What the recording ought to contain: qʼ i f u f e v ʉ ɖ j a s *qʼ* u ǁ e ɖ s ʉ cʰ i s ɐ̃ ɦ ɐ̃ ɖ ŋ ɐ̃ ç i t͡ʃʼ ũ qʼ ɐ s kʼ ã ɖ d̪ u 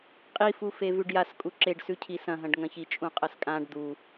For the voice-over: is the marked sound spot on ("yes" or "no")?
no